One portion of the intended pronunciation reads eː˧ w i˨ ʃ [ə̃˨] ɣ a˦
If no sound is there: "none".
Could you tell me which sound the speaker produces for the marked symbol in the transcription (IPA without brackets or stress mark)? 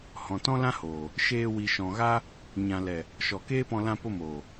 ɔ̃˨